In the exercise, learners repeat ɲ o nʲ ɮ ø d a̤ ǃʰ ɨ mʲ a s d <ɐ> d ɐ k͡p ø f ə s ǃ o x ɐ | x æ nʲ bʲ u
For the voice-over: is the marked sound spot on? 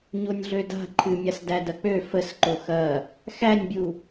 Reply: no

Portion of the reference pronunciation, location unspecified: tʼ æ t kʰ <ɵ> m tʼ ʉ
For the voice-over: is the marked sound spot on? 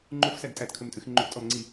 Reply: yes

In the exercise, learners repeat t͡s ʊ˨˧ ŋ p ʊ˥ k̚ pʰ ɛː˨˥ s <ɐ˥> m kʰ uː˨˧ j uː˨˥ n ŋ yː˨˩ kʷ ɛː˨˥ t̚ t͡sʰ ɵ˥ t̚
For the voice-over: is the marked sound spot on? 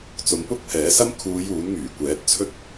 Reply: yes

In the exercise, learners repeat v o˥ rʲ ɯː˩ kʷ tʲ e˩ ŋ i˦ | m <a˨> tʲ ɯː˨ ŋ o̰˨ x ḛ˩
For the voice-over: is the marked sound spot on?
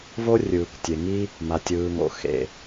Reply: yes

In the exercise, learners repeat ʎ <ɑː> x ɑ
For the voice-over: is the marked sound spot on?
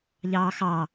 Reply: yes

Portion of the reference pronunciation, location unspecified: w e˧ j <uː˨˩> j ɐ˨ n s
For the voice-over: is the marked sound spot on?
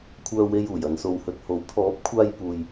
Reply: yes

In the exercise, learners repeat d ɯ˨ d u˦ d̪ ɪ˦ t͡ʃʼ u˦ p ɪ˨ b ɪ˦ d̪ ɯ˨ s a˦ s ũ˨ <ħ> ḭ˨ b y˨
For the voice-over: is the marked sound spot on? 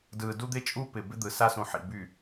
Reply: yes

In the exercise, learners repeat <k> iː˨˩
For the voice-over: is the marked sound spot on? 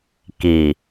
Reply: yes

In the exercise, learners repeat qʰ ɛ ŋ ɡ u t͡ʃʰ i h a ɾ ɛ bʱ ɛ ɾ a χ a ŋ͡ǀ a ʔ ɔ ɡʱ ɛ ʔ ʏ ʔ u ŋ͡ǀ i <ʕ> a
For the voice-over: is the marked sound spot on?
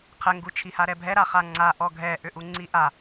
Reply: no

